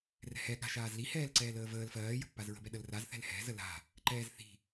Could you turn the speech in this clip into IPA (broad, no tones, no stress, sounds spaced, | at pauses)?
r ɛ̤ h ɛ ɠ a̤ ʃ aː z l i h ɛː l ǀ ɛː l əː v əː l f ɜː j ə̤ pː a z ɹ ə̤ b ɛ ɗ ə l r a z θ ɛ̤ l h ɛ̤ z ə l a̤ | ǃ ɛː z θ i̤